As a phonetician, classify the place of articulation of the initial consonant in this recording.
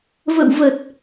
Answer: labial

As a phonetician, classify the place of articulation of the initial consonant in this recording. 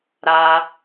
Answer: alveolar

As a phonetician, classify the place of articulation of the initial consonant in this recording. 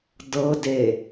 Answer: alveolar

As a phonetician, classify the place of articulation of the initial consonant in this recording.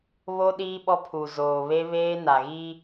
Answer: labial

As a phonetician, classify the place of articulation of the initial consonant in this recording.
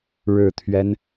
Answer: retroflex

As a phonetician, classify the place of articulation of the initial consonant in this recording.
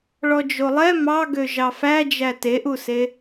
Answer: retroflex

